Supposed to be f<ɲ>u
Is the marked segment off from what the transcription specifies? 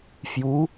yes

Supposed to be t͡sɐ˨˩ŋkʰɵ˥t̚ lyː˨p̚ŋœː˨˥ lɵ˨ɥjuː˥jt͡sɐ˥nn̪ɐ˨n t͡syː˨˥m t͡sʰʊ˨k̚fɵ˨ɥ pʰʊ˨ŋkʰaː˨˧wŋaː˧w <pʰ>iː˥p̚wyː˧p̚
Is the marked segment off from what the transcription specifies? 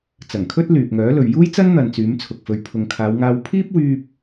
no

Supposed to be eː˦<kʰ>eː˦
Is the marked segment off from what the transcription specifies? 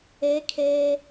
no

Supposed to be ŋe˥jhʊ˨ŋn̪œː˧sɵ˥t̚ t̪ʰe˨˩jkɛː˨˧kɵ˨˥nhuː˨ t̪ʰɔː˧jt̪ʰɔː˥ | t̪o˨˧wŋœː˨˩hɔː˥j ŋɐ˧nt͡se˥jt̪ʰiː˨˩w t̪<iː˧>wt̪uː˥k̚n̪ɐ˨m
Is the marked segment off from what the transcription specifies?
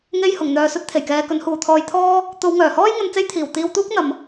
no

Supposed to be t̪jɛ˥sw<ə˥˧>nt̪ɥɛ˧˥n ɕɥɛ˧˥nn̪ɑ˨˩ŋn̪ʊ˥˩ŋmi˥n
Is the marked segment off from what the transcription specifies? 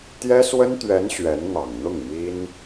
yes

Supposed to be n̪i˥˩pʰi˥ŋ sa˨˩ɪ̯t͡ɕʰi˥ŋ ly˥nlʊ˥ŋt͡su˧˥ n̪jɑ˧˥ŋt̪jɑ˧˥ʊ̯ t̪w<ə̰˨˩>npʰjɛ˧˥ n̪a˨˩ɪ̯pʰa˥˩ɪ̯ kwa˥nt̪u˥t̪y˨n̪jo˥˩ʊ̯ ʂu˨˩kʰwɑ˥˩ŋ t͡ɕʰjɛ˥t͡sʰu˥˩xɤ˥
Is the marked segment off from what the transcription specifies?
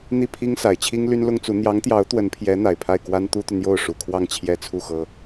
yes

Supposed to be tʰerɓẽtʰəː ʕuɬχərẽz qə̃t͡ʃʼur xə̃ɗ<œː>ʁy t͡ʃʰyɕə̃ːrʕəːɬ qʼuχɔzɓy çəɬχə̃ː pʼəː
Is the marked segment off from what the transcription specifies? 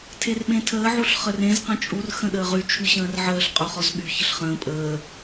yes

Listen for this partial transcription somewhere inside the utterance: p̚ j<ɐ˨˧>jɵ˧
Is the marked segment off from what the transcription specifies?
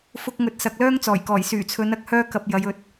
no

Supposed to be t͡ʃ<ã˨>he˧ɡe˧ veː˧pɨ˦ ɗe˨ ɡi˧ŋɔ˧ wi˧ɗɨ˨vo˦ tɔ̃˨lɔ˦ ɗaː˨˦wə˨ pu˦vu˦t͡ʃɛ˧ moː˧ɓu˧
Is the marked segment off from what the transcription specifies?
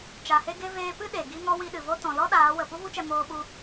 yes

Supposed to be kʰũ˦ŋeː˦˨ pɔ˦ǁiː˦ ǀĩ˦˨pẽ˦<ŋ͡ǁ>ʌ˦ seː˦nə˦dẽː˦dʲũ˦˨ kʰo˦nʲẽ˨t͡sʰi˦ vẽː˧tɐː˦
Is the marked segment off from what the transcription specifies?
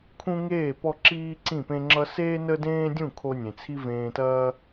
no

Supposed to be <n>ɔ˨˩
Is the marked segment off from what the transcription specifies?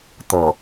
yes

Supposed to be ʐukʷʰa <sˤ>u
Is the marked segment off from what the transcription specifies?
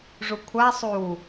no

